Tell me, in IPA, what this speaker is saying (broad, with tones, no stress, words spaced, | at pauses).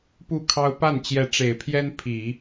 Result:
pu˥˩kʰɑ˥ʊ̯ pa˥˩nt͡ɕjɛ˧˥ʈ͡ʂe˨˩ɪ̯pʰjɛ˥n pʰi˨˩˦